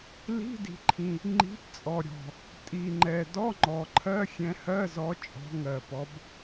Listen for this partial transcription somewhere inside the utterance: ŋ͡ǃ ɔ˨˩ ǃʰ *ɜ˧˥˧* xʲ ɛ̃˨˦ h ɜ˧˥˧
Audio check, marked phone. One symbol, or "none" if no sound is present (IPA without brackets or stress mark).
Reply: ɜ˧˥˧